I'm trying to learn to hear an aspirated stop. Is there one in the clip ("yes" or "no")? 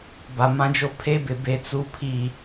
yes